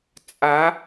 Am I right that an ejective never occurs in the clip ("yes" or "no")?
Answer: no